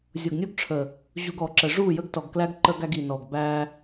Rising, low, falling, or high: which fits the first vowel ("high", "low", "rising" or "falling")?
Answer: low